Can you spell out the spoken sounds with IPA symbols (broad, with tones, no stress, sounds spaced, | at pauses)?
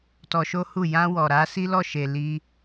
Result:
t ɔ˧ ʃ o˦ h u˦˨ j ã˧ w ɔ˨ ɾ a˧ s i˦ l ɔ˦˨ ʃ e˨ l i˧